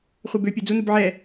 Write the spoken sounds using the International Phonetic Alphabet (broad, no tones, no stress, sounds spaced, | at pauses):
χʷ ɛ b ø pʲ ø d͡z u n u b ʕ ɛ